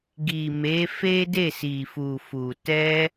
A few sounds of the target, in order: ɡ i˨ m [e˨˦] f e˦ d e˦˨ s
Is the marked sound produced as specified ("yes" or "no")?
yes